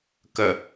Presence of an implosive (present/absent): absent